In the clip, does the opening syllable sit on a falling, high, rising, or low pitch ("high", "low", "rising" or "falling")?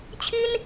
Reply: high